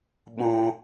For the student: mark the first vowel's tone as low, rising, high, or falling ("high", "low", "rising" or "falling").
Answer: high